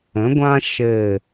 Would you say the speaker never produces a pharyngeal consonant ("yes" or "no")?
yes